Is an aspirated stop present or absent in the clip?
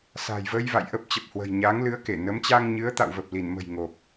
absent